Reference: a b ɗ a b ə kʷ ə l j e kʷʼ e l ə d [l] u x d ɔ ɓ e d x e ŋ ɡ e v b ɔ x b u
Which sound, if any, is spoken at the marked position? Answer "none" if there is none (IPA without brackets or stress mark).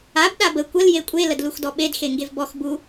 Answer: l